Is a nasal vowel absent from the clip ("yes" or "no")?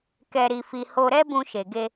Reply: no